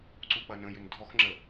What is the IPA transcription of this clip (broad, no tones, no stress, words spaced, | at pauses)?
ǀuk͡pɐnə̃ jʏndʱɔx ŋ͡ǁə